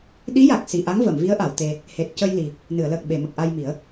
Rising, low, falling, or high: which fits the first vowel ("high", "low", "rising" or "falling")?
rising